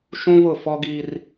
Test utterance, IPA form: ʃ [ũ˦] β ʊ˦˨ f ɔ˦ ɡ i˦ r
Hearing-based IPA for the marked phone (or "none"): ũ˦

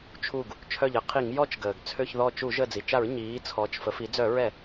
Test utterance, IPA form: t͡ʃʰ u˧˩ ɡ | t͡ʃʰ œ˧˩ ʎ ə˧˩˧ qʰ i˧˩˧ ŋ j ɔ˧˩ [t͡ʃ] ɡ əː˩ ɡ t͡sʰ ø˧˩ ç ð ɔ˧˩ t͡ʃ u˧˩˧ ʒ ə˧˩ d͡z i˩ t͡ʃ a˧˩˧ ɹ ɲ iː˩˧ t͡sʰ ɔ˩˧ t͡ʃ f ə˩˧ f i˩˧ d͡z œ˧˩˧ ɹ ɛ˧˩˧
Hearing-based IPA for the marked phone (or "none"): t͡ʃ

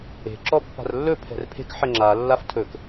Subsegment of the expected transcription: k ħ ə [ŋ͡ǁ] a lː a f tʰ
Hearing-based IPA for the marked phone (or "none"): ŋ͡ǁ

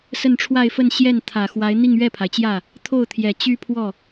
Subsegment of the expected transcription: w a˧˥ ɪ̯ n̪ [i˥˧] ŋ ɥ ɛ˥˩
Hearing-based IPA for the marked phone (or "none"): i˥˧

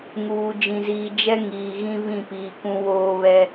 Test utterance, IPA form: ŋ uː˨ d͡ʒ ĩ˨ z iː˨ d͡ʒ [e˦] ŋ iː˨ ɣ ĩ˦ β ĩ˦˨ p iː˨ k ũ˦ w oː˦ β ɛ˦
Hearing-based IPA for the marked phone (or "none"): ɛ˦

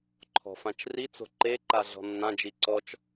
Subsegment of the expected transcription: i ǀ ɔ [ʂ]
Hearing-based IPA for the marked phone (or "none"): t͡ʃ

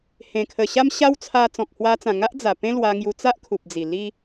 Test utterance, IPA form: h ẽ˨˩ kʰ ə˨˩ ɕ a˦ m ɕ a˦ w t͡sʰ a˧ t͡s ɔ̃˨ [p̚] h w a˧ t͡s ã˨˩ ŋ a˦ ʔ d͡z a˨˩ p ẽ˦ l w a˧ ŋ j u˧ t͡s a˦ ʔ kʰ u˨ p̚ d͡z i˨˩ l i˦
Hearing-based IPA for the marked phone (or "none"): k̚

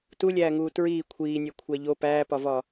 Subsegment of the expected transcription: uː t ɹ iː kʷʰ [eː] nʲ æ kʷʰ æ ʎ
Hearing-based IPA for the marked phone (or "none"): iː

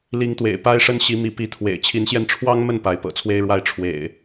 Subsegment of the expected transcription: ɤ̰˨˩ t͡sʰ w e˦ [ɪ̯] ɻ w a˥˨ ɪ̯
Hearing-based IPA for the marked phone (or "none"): ɪ̯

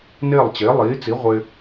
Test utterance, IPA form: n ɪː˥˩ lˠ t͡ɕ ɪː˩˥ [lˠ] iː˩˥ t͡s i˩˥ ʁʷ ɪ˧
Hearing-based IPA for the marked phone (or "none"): lˠ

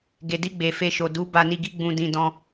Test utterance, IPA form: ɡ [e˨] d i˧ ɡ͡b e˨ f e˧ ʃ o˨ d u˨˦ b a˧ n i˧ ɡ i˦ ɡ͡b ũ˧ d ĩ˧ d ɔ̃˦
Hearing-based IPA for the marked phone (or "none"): e˨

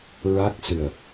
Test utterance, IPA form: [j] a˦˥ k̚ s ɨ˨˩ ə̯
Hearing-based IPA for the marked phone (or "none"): ɹ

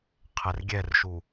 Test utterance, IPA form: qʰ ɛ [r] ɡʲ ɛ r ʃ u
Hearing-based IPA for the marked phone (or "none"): r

